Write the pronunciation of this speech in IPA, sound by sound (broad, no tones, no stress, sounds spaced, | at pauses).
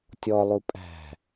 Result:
tʲ ɔ lˠ u pʼ æ̤